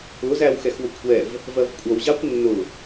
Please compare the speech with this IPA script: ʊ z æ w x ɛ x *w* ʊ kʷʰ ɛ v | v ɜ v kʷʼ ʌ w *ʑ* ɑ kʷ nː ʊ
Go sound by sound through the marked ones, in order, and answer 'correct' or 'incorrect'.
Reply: correct, correct

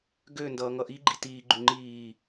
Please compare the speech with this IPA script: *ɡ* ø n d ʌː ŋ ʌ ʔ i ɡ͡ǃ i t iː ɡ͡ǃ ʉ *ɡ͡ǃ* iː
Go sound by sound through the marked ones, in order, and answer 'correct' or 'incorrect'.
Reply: correct, incorrect: ŋ͡ǃ

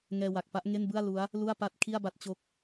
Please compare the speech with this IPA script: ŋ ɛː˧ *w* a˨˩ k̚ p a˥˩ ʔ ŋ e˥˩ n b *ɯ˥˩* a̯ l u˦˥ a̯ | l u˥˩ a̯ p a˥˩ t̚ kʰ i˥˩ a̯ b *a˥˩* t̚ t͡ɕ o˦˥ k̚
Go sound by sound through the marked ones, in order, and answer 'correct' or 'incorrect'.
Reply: correct, correct, correct

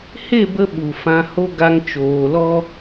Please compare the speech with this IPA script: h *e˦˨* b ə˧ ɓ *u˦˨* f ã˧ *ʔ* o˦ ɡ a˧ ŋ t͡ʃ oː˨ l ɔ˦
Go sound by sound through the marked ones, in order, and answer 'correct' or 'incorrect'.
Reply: correct, incorrect: u˨, incorrect: h

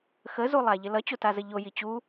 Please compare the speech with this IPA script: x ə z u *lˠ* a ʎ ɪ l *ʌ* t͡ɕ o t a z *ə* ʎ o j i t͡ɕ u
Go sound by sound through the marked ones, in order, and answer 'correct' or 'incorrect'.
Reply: correct, correct, correct

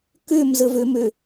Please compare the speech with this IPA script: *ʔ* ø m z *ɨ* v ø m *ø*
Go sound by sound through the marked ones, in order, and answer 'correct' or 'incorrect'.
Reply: incorrect: k, incorrect: ə, correct

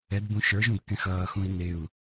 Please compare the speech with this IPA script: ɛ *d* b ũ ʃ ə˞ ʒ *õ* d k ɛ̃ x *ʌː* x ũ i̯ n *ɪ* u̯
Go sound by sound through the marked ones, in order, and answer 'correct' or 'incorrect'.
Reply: correct, incorrect: ũ, correct, correct

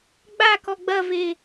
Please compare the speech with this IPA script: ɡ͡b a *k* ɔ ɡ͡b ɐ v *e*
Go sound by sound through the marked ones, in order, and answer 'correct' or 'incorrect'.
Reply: correct, correct

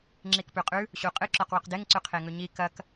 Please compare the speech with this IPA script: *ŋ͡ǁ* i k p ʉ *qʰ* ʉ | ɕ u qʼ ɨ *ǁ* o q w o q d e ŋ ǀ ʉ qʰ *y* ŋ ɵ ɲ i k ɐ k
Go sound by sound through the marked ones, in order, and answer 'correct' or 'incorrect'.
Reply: correct, incorrect: qʼ, correct, incorrect: e

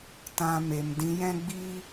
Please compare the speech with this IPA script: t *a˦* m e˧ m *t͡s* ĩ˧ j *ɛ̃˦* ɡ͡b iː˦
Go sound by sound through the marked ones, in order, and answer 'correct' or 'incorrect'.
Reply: incorrect: ã˦, incorrect: d, correct

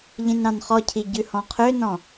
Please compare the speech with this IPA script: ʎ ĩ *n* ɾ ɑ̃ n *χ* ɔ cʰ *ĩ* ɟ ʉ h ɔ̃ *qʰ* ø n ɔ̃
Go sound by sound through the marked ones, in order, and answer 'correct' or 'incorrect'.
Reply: correct, correct, incorrect: i, correct

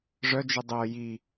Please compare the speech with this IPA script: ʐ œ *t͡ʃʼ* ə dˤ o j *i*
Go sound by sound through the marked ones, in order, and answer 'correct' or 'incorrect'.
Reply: incorrect: d͡ʒ, correct

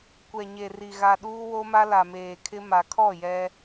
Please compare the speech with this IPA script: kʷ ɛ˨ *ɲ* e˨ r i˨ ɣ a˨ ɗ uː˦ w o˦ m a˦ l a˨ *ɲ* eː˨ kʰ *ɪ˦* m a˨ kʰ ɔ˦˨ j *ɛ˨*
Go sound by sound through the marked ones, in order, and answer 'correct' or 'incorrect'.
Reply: correct, incorrect: m, correct, incorrect: ɛ˦

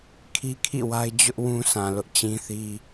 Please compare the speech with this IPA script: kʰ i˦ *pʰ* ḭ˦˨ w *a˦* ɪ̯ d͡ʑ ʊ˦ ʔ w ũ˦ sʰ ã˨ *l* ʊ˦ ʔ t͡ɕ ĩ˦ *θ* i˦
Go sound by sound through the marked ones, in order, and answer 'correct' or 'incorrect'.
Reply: incorrect: kʰ, correct, correct, correct

